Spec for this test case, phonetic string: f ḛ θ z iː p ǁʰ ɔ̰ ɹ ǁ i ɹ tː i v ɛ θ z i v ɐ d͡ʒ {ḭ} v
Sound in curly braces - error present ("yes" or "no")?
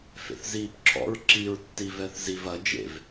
yes